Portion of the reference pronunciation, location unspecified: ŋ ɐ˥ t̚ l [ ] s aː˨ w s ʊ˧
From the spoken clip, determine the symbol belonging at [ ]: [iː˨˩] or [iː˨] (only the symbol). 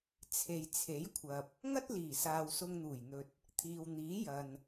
iː˨˩